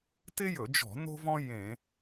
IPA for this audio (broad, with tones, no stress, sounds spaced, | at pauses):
t ɪ˥ j ɵ˧˩˧ d͡ʒ ɔ̤˧˩˧ n o̤˥ v ɔ̃˥ j ẽ˧˩˧